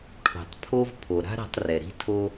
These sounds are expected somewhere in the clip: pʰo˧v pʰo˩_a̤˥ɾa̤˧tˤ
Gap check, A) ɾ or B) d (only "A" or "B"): A